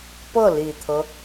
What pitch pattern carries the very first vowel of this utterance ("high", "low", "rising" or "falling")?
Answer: falling